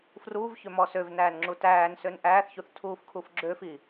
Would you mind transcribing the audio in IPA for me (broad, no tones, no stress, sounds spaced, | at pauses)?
f r uː v ç ø m ɔ s ø v n æː n ŋ͡ǁ u t æː n s ø n ʔ æː θ ç u θ tʰ uː f kʰ u f ɡ͡ǁ ø f i